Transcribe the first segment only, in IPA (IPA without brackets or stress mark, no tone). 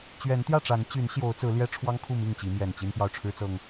t͡ɕ